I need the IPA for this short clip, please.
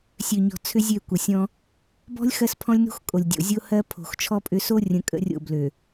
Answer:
sʲ ø˨ ɲ ɔ̤˨ t͡sʰ ʏ˦ zʲ ø˦˨ kʷ ə˨ sʲ ɔ̃˦ | b ɔ̤˦ lʲ x ɜ˦ s pʰ ɔ̃˦ lʲ n o̤˦ x kʼ o˨ lʲ dʲ o̰˨ zʲ o˦ h ɜ˦ pʰ o̤˨ x t͡ʃʰ ɔ˦ pʼ ʏ˦ s o˦ rʲ ə̃˨ kʼ ə̰˦ rʲ o̰˦˨ b l ø˨

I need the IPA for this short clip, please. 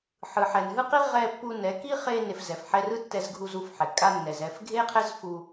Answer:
ħ ɯ˨ ħ ɛ˨ n ɦ ɯ˦ q i˦ ʁ ɛ˧ pː u˧ n ɛ˨˦ k i˦ χ e˧ n e˨ f z ɛ˨ f ħ ɛ˧ r ɯ˦ tː ɛ˧ z ɡʱ u˧ z u˧ f ħ ɛ˨ kʼ a˧ nː ɛ˨ z ɛ˦˨ f ɡʱ e˦ qʰ ɛ˦ z f u˧

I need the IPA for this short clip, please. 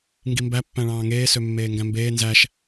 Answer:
ŋ ɡ i m b æ pː æ̃ ɭ ɑ̃ː ŋ eː s ø mː eː ŋ ɡ æ̃ m b eː n z æ ʃ

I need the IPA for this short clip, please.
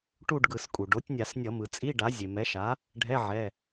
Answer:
ʈ u˥˧ ɖ ɡ ɯ˧˩˧ s kʼ u˩ ɖ o˩˥ tʲ nʲ a˧˩˧ s nʲ ʌ˧˩˧ m ɯ˩ t͡sʼ i˧˥˧ ɖ a˩˥ zʲ e˩ m ɛ˩˥ ʃ a˩˥ | ɖʱ ɛ˧˥˧ ʕ ɛ˩˧˩

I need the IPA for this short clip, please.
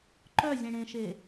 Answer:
ǃ œ zʲ ẽ ɽ ẽ ʃ e

